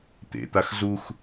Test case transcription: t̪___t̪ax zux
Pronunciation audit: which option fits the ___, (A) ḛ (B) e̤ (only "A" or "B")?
A